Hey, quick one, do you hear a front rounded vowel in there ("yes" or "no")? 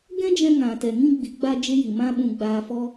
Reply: no